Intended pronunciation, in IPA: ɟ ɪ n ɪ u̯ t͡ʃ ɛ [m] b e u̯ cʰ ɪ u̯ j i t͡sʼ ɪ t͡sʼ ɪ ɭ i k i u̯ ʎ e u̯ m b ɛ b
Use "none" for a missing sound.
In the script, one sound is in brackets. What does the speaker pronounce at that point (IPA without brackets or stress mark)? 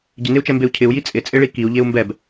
m